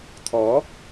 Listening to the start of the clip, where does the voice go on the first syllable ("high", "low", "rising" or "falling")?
rising